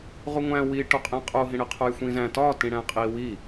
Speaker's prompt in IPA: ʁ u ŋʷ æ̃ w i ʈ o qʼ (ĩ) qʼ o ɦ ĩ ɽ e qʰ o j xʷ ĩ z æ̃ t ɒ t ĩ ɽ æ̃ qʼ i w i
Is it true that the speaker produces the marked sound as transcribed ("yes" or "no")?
no